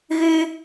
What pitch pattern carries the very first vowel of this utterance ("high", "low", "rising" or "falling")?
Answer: high